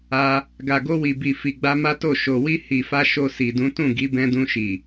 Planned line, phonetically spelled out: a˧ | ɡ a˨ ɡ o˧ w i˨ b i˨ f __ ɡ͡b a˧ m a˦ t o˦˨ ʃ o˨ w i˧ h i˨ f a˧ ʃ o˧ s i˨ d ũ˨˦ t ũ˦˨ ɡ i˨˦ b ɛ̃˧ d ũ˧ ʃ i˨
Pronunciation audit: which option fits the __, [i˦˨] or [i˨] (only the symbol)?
i˨